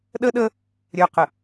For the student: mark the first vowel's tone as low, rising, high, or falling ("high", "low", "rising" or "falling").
high